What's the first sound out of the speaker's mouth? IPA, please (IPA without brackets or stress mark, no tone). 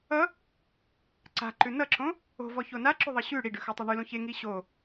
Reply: ʌ